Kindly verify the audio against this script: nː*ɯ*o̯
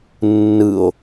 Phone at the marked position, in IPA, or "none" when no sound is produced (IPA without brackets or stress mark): ɯ